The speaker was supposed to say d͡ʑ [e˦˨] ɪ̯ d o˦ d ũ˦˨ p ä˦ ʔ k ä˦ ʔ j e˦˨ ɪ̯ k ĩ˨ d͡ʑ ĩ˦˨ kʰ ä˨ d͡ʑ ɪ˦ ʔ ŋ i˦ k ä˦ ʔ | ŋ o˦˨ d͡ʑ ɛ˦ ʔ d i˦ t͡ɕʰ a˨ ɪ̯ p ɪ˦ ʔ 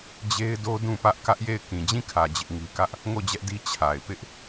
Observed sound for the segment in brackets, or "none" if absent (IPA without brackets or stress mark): e˦